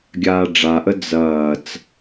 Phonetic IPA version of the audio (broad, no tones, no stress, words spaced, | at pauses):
ɡʲaːɖ͡ʐaʔə d͡zɐːt͡s